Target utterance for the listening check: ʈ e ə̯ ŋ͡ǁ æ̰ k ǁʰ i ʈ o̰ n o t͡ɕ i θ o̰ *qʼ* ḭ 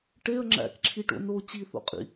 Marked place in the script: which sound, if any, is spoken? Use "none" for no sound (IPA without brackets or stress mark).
qʼ